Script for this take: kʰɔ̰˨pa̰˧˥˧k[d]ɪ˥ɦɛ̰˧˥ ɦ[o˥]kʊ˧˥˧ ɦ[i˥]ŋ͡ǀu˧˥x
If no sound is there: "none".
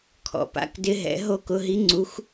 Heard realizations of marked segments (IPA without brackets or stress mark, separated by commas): d, o˥, i˥